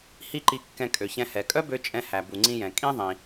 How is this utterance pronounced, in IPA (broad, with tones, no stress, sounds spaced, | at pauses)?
h i˥ ǃ i˧ kː ɛ̃˧ kʼ ø˩ ç ɛ̃˧ h ɛ˩ kʼ œ˥ b ø˧ t͡ʃʼ ɛ̃˧ h æ˩ b u˩ ŋ͡ǀ ĩ˧ j ɛ̃˩ kʼ ĩ˥ ðˤ ĩ˩